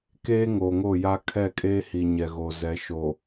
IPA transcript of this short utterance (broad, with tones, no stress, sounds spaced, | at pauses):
k eː˦ ŋ oː˨ ŋ o˦˨ j a˦ kʰ ɛ˦˨ kʼ eː˦ h i˨ ɲ ɛ˨ ɣ o˨ z ɛ˨˦ ʃ o˨